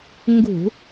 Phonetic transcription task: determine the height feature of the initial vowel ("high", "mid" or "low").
high